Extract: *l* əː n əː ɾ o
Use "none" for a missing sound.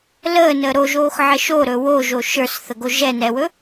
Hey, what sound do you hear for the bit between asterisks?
l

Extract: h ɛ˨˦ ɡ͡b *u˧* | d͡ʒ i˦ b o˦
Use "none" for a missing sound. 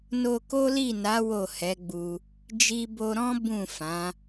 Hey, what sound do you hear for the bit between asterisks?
u˧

